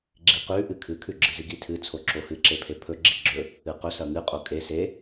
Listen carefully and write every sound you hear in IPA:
ɡ͡ǁ i q ʉ ʔ ɨ kʰ ɨ kʰ ʉ ɡ͡ǁ ɨ z i ɡ i tʰ ɨ t͡sʰ o ǁ o h ɨ ǁ e pʰ e pʰ ɵ ɡ͡ǁ i ɡ͡ǁ ɵ | ɨ q ɵ s ɐ ŋ ɨ qʼ o kʼ e s e

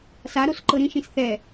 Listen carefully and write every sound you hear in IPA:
s a ɾ o s ǃ ɤ ɾ ĩ ʃ ĩ s θ ɛ

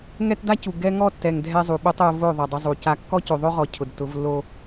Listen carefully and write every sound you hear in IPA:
ŋ ɛ˦ t d a˦ c u˨ ɡ ɛ˦ ŋ ɔ˦ tː ɛ˨ ŋ dʱ ɛ˦ zˤ u˨ ɓ o˦ tˤ o˦ v o˦˨ ðˤ ɛ˨ dˤ ʊ˦ zˤ u˨ c a˦ kː ɔ˦ c o˨ ðˤ o˦ ʁ ɔ˨ cʰ ʊ˨ d t ʊ˨˦ v lː o˦

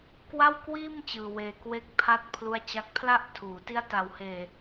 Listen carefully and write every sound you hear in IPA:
k w a˥˩ w k w iː˥˩ m t͡ɕ ɯː˧ w eː˧ k w e˦˥ k̚ pʰ a˦˥ t̚ pʰ l u˦˥ a̯ t͡ɕ a˦˥ k̚ pʰ l a˥˩ ʔ tʰ uː˩˦ t i˦˥ a̯ t a˨˩ w h eː˨˩

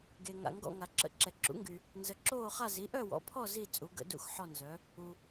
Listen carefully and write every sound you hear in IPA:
ɡ e˨ ŋ a̰˨ ŋ ɡ ɔ̰˥˨ ŋ a˨ ǁ ə̰˩˥ ǁ ɛ˨ ǁ ṵ˩˥ ŋ ɡ y˨ | n z ə˨ ǁ oː˥˨ χ a˥˨ z i˩˥ ʔ œ˥˨ w ɔ̰˩˥ pʰ ɔ˥˨ z i˥˨ t͡sʼ u˩˥ ɡ ə̰˩˥ d ṵ˥˨ x ħ ɔ˥˨ n z œ˩˥ | u˨

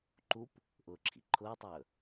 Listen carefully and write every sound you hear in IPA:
ǃ u p | ʔ ʊː ǁʰ ḭ ǃʰ ʊː tˤ ɵː

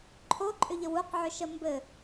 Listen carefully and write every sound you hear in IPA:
ǃʰ o ǃʼ ʏ ʎ ə w u q ʕ ʏ ʃ ə m b ɘ

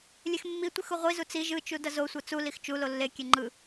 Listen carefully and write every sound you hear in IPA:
lʲ e x mː i tʷ i x u ʁʷ i z u t͡s i ʒ ɯ t͡ʃ u d ʌ z o sʷ ʌ t͡s u l i x t͡ʃ u l o lː e kʲ e ŋ͡ǃ ɯ

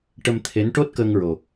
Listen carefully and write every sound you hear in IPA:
ʈ ə˧ m t̪ʰ e˧˥ n ʈ o˦˥ t̚ k əː˧ ŋ ɹ o˨˩

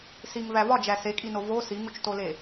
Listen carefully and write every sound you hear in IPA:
s i ŋ v æ v ɒ d͡ʒ æ s e kʼ i n o v o s i ŋ u t͡ʃ t o l e

